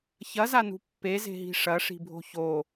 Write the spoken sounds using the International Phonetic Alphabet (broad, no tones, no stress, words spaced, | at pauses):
çɐzanṳ pːeze̤ɦi̤ ʂɐʂi̤bʱo̤ ço